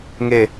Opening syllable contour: falling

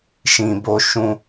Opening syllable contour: low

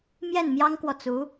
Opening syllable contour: falling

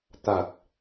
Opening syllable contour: low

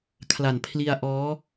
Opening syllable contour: low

